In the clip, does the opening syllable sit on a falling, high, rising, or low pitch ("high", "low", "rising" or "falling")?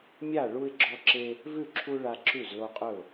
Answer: falling